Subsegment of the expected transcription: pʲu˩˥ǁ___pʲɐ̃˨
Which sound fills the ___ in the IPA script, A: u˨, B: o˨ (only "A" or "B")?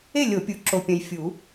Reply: B